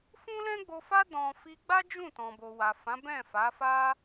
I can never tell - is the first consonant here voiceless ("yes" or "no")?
yes